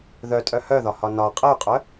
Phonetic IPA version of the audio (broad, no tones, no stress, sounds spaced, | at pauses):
ð œ tʼ œ h œ ð ɒ h ɒ n ɒ qʼ ə y̯ qʼ œ